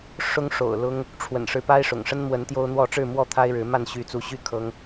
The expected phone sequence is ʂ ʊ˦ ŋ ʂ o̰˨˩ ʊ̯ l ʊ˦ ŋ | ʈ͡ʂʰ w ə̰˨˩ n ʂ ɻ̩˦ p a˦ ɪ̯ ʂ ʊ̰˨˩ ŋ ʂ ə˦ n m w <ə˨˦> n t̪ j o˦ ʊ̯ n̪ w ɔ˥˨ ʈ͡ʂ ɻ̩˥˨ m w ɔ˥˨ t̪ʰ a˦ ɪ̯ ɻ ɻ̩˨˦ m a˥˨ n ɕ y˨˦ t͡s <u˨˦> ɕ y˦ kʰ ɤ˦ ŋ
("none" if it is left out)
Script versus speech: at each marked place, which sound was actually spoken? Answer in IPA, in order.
ə˨˦, u˨˦

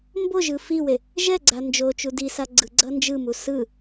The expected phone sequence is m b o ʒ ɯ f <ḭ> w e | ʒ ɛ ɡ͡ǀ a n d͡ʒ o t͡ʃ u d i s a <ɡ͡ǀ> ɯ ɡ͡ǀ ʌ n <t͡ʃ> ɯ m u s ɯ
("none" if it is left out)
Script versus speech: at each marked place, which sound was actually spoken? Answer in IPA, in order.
i, ɡ͡ǀ, d͡ʒ

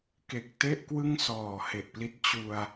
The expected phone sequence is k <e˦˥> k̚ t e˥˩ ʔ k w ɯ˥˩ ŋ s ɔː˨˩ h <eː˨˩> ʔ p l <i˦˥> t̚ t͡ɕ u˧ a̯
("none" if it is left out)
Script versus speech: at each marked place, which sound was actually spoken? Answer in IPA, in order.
e˨˩, e˨˩, i˦˥

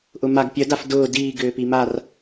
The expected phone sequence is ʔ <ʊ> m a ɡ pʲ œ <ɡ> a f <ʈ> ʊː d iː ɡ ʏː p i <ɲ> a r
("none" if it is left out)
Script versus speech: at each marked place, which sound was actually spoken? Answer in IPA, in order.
ʊ, d, d, m

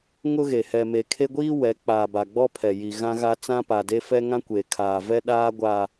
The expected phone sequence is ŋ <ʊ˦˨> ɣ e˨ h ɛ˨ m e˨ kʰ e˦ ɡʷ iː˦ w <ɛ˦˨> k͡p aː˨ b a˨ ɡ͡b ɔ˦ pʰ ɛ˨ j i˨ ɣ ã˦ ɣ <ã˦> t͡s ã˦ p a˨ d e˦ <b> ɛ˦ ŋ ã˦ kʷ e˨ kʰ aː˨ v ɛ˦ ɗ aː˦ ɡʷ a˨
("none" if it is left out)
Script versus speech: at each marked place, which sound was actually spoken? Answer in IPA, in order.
ʊ˦, ɛ˨˦, a˦, f

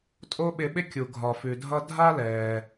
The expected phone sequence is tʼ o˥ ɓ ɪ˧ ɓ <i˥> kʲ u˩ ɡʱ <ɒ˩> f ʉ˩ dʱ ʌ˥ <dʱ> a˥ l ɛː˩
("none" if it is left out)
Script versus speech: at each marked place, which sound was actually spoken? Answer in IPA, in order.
ɪ˥, ɒ˩, dʱ

